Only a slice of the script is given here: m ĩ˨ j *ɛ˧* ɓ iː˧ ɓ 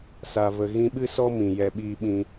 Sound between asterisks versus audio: correct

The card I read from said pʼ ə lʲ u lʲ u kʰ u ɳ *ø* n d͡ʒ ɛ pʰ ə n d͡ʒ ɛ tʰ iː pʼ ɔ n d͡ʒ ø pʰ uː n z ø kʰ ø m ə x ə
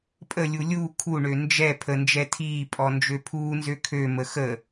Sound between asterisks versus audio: correct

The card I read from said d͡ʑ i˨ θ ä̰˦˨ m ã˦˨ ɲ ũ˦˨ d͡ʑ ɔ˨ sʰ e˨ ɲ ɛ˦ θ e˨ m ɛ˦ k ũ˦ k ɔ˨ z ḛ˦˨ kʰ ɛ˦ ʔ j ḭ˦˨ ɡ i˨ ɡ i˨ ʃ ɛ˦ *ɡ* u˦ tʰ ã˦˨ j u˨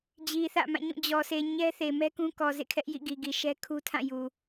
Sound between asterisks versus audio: incorrect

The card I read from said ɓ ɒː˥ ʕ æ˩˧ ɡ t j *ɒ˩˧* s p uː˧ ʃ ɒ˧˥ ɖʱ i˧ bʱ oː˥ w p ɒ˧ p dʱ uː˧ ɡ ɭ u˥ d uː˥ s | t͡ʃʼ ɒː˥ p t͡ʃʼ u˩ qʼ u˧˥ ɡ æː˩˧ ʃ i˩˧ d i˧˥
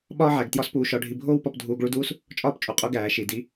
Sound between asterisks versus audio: incorrect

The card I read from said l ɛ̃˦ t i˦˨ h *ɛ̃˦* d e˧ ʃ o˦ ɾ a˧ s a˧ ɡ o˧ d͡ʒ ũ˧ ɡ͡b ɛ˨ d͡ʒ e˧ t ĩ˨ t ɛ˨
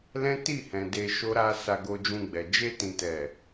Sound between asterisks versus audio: incorrect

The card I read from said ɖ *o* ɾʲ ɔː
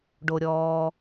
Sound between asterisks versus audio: correct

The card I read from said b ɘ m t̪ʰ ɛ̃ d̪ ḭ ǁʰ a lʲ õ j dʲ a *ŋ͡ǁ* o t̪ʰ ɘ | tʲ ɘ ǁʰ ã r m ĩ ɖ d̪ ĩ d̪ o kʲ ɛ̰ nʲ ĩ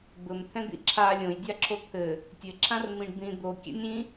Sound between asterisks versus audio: incorrect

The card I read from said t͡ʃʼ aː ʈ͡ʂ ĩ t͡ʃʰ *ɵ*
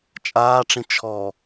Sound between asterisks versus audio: incorrect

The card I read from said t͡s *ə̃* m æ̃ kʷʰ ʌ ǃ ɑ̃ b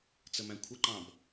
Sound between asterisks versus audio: incorrect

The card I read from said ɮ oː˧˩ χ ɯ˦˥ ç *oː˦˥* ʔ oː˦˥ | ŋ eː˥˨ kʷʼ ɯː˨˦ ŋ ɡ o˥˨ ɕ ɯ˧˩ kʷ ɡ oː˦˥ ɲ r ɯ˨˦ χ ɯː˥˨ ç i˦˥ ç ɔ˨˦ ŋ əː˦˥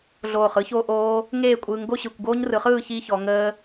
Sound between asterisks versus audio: correct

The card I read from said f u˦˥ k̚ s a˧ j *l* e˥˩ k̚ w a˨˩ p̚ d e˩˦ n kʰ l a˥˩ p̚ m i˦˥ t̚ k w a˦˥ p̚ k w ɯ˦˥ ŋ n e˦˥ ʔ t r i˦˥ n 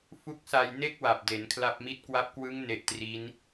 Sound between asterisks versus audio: incorrect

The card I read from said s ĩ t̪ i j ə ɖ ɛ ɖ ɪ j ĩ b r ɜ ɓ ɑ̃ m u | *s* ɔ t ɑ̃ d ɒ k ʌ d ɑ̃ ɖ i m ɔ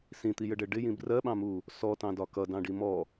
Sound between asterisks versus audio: correct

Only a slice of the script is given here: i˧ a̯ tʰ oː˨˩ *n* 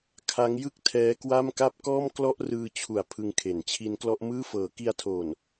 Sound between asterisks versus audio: correct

